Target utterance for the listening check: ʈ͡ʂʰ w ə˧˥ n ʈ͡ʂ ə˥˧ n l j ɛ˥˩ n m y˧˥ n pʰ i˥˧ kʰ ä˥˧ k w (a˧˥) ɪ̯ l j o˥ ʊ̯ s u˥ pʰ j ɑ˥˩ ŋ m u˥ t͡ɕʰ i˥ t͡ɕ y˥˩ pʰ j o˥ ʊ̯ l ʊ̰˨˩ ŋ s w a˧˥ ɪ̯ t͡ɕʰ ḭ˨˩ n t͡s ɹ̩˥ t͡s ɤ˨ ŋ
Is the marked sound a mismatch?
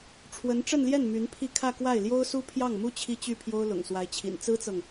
yes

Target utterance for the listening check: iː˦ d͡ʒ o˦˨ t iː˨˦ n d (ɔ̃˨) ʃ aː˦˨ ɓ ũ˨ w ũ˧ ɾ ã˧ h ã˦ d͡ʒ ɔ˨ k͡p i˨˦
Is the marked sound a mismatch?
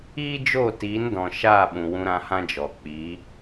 no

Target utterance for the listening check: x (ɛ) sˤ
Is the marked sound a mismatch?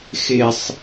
yes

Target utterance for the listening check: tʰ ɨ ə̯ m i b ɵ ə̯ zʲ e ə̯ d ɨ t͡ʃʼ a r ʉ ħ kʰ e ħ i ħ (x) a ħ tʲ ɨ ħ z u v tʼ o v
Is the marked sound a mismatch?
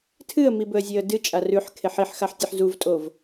no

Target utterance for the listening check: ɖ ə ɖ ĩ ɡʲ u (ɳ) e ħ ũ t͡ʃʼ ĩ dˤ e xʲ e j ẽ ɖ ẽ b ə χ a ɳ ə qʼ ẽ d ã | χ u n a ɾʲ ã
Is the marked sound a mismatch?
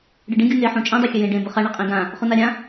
yes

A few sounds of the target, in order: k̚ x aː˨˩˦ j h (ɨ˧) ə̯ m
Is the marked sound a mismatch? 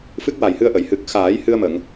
no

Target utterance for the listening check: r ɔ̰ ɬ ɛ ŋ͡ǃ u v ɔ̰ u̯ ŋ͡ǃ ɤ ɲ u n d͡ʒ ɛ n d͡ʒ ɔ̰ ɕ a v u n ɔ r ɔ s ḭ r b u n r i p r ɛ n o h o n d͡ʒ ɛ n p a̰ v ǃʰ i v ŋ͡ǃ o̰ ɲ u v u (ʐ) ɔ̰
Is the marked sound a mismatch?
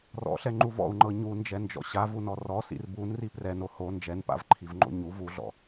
yes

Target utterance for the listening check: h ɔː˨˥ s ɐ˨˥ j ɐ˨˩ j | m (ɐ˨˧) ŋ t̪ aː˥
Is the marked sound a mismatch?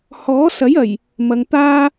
no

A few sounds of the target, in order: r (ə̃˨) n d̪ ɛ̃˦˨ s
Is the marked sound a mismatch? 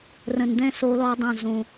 no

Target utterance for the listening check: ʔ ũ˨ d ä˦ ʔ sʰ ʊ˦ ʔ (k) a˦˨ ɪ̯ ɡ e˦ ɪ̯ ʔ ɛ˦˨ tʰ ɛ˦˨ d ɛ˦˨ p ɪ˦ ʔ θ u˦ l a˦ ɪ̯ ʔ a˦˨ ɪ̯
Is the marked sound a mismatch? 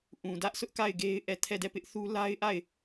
no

